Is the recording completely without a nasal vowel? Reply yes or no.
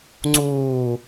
yes